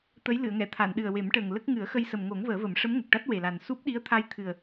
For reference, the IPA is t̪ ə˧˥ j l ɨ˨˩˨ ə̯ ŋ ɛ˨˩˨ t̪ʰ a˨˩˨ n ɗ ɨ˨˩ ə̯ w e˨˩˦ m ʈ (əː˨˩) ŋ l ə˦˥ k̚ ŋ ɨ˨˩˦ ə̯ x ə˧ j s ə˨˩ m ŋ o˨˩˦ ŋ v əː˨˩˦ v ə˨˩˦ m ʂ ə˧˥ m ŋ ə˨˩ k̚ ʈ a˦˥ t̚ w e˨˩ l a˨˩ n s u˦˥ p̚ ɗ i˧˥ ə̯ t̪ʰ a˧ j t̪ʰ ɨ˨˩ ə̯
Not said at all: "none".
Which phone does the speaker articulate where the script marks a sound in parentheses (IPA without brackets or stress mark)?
əː˨˩